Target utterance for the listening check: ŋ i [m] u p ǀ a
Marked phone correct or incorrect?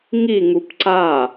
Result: incorrect